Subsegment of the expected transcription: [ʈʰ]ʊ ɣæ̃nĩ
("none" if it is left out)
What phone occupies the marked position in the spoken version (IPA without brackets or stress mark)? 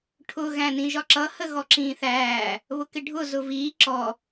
ʈʰ